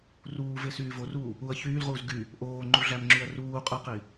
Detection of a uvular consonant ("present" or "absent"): present